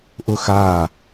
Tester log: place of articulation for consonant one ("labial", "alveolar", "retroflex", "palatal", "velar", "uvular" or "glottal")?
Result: glottal